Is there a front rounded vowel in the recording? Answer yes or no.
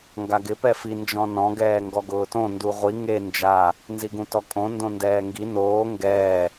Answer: no